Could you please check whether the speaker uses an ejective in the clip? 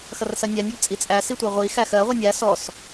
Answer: yes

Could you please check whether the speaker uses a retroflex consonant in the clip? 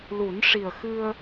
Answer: yes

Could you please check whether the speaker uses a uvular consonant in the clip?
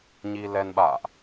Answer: no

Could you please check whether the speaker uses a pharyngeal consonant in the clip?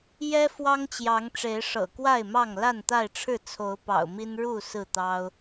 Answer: no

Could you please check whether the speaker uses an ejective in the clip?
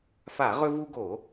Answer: no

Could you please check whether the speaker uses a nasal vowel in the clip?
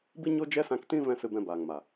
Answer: yes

